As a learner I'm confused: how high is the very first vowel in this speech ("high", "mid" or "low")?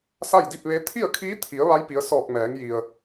low